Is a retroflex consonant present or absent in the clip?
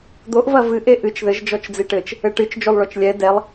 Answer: present